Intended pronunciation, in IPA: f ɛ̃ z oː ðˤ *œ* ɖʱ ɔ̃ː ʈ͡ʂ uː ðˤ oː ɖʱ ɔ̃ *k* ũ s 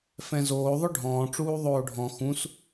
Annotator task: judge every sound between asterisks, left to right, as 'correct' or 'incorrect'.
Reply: correct, incorrect

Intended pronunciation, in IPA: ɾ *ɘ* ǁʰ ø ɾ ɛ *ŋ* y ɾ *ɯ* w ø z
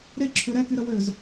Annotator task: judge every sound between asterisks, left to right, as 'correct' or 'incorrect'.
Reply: incorrect, incorrect, incorrect

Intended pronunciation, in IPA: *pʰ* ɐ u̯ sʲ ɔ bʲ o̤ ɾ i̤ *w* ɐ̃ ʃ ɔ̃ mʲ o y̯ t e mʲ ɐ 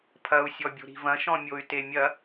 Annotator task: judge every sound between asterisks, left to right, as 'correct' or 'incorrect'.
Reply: correct, incorrect

